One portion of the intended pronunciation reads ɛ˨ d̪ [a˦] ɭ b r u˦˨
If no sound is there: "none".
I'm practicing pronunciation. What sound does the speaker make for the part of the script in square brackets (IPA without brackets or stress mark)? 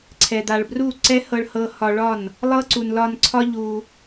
a˨